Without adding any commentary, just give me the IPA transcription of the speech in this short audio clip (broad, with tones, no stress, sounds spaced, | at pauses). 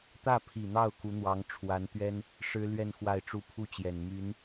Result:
t̪ ä˥˩ pʰ i˨˩ n̪ ɑ˥˩ ʊ̯ k u˧˥ n̪ w ɑ˧˥ ŋ ʈ͡ʂʰ w a˧˥ n t̪ ɥ ɛ˥ n | ʂ ɻ̩˥ l ɥ ɛ˥˧ n x w a˥˧ ɪ̯ ʈ͡ʂ u˥˧ pʰ u˥˩ t͡ɕ j ɛ˨˩ n m y˧˥ n